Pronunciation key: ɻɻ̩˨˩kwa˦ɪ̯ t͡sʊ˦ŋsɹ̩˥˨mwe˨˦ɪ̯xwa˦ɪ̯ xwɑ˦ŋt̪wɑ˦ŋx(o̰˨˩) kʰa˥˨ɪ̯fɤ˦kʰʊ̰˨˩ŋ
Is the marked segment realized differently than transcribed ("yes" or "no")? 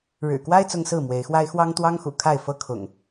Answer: yes